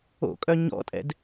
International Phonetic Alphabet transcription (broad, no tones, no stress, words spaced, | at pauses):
o̰kʼœ ɲɔ̰tʼɛ̰d